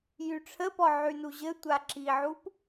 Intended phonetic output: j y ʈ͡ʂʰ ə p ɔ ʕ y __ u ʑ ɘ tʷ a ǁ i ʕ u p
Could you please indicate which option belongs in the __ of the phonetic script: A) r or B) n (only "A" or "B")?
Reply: B